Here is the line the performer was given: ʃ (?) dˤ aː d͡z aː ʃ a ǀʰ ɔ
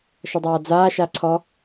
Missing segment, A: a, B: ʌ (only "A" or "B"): B